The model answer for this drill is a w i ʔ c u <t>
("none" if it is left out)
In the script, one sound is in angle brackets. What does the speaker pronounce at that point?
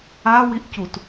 t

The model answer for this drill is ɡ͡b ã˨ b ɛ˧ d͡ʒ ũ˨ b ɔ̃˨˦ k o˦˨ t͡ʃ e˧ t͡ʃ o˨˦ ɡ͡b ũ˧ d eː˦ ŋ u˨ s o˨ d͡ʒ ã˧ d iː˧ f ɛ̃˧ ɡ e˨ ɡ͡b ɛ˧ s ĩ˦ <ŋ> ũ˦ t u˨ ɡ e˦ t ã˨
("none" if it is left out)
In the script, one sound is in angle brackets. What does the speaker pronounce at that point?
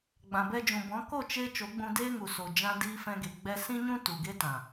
ɲ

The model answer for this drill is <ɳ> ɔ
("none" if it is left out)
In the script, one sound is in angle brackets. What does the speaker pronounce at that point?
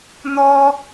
n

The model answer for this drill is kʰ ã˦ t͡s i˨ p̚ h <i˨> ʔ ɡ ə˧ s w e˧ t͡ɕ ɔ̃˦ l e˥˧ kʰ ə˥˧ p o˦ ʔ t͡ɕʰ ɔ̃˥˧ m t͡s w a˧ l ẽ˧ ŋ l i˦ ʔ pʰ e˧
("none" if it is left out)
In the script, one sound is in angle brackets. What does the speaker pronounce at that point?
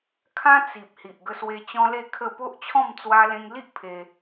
i˨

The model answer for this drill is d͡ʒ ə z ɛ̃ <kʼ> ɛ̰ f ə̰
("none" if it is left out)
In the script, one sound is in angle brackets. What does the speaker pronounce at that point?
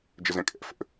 kʼ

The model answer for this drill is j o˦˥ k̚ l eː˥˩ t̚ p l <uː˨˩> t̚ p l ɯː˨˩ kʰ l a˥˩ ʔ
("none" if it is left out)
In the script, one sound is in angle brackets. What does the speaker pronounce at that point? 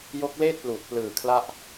uː˨˩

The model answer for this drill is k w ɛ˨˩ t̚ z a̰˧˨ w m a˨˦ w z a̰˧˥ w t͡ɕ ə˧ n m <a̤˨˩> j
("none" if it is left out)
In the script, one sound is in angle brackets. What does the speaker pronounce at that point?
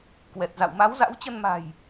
a̤˨˩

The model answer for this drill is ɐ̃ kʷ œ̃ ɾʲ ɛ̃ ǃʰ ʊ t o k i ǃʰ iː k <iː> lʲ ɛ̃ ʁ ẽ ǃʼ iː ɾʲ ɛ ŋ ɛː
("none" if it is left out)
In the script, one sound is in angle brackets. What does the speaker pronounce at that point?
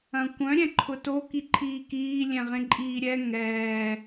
iː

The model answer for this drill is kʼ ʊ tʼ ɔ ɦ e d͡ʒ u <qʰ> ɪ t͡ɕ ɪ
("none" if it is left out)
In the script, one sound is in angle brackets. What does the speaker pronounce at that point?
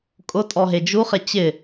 χ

